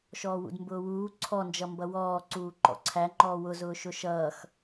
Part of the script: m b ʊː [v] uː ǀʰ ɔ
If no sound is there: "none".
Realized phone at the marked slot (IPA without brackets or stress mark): w